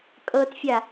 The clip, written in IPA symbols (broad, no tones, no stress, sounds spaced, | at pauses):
kʼ ɤ t fʲ a